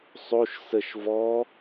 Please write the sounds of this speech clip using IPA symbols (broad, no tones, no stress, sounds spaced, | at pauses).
sˤ o ʃ s ə ʃ v ɔ